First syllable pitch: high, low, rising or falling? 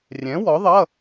rising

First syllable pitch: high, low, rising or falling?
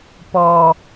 low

